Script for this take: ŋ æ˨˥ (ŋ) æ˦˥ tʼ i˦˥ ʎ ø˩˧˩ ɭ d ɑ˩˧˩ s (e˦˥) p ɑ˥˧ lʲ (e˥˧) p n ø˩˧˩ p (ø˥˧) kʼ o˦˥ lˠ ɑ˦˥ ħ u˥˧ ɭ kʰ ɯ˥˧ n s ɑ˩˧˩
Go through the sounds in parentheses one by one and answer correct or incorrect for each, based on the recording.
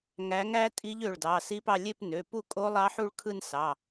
correct, incorrect: i˦˥, correct, incorrect: u˥˧

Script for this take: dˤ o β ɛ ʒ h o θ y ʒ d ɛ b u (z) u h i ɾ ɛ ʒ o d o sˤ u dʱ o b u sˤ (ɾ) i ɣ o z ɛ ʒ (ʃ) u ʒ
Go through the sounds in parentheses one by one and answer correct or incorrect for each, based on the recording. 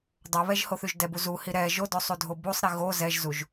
correct, correct, incorrect: z

